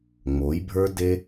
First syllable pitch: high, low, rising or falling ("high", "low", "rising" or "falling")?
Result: rising